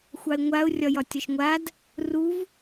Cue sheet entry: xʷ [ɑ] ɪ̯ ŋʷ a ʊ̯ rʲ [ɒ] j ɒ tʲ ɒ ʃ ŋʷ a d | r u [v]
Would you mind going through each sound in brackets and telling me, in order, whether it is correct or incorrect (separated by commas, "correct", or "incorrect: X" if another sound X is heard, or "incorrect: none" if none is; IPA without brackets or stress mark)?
correct, correct, correct